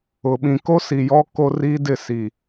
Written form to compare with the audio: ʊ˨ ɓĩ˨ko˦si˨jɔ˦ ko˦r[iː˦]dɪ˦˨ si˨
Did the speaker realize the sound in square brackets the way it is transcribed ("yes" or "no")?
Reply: yes